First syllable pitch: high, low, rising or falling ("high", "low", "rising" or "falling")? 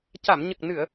low